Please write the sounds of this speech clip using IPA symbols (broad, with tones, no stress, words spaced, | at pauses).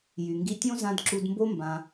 jy˨ŋɡi˧tʲõ˦ zã˦d ǁu˧dmbo˦mbã˧